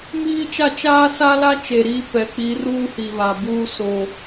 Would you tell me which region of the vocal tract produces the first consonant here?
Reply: lips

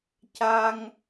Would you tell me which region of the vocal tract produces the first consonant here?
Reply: palate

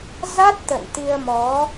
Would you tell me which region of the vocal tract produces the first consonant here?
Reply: tongue tip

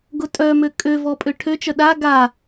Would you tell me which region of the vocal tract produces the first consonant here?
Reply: velum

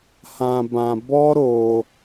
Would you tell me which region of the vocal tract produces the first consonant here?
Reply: throat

